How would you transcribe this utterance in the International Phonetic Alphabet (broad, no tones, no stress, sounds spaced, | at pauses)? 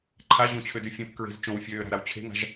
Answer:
ǃʰ a ʑ õ t͡ɕʰ ø d y fʲ õ t k ɹ e̤ z t͡ʃ õ w fʲ øː ɾ a̤ ɾ a w t͡ɕʰ e̤ ŋ a̤ ʒ